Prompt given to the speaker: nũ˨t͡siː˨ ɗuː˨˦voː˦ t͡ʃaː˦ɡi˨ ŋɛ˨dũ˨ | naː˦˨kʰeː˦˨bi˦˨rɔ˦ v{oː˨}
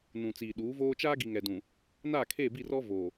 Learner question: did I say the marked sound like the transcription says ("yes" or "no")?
yes